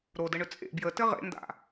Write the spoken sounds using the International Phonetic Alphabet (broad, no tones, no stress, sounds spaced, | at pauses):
ɾ o d ə ɳ ʏ t͡sʼ ḛ b j ə t ɘ ʁ ḛ n d a̰